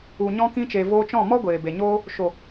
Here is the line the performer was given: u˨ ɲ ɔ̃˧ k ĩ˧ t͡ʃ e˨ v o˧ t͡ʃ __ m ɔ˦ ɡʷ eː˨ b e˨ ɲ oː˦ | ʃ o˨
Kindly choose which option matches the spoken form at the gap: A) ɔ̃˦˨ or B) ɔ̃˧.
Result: A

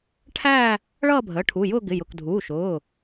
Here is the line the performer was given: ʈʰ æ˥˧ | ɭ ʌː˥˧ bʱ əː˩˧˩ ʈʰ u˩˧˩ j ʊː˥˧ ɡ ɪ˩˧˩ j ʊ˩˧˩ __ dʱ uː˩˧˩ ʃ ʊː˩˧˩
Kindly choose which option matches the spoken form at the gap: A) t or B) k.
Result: B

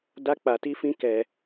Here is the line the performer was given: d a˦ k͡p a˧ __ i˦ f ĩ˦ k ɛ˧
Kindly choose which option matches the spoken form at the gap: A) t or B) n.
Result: A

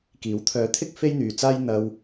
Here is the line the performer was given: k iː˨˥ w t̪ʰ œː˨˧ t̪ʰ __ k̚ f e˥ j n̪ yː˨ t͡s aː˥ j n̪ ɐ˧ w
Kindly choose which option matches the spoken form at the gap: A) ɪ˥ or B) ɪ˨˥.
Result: A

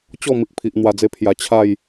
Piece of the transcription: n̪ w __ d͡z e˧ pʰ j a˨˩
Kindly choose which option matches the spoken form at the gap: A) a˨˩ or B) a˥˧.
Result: A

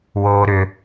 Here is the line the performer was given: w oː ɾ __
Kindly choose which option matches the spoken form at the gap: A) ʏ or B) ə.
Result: A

